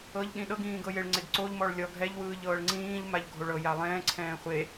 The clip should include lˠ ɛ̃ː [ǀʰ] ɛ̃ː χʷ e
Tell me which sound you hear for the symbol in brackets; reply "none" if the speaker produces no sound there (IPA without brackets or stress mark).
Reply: ǀʰ